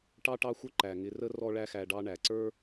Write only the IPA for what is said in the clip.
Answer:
ʈɑ˥ʈɑ˥xʷə˥ ǃæ˩ŋɪ˧rə˥ rɔ˥ɭæ˥xæ˧ɖɑ˥ ɳæ˩ǀə˞˥

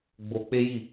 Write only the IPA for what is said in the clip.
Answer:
ɡ͡bo˧ k͡pe˦ji˦˨

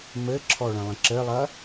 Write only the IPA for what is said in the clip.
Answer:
mɘǁʰɔ ɭə̃lˠə̃ǁɘlˠɐ

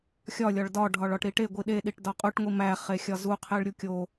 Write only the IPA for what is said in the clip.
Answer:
xʲɒ lʲɒɭdɒ ɖʱɒɭɒʈɾiʈe ɡʷiɗe ɗiʈdɒqʼuʈ ŋʷimæ χexʲɒzu qʰeɭɾʲukʲo

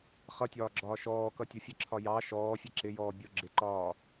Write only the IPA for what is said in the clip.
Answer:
χʌtʲɒː ɡ͡ǁɒːʃɔːkʌ tʲʊfʲəǁʰɒ jɑ ʃɔːfʲɛ ǁɪjɔː bʲʊ ɡ͡ǁɪǃɒː

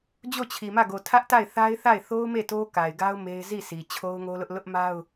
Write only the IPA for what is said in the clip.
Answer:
d͡ʑo˦˨t͡ɕʰi˨mä˦˨ ɡo˨tʰä˦ʔta˦˨ɪ̯ θa˦ɪ̯θa˦˨ɪ̯ θo˦ʊ̯me˦˨ to˦ka˨ɪ̯ɡa˦ʊ̯ me˦ɪ̯ zi˦˨si˨ t͡ɕʰo˦ʊ̯ŋo˦lʊ˦ʔ lʊ˦ʔma˦ʊ̯

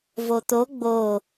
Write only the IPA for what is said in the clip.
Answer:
vot̪o ɡ͡bo

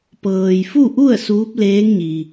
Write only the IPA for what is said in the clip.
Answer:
pɤː˩j fu˥˨ʔu˥˨ə̯ suː˧˥p̚leː˧˥ŋɲi˩

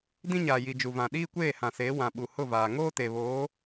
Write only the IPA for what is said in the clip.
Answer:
dĩ˦ɲaː˨ji˨ d͡ʒu˨vã˨ ɗiː˦kʷeː˦˨hã˨seː˨˦ wã˨ɓu˨hʊ˦˨vaː˨ ŋoː˦te˨βoː˨˦

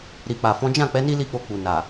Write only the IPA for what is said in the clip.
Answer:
ɾi˨k͡pa˨fɔ̃˨˦ d͡ʒã˦˨k͡pɛ˨˦ ni˦li˦˨k͡po˧k͡pu˨ na˨

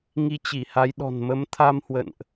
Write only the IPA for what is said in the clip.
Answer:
ŋi˧t͡ɕi˧˩ha˨˦jɗɔ̤˨˩n mə˨˦mt̪ʰa˧mhwə̰˧˨nʔ

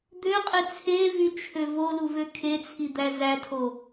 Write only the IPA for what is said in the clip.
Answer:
d̪øqʼe t͡sʰevyt͡ʃʰø voluvø kʰet͡sʰid̪æ zætʰo

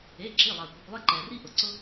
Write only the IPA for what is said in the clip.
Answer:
e˩˧˩ǁi˩˧˩ lˠɑ˩kʷɨ˩kʷlˠe˦ ǃɛ˩ri˦ʔʊ˩ ǀʊ˦

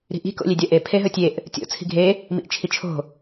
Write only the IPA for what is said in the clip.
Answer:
ɾi̤ʔi̤ ko̰lʲedʲɐʔe pʰeɦɵtʲeʔ | tʲo̰ t͡sʰi̤ɡʱe | mḭʔt͡ʃʰit͡ʃʰo̤

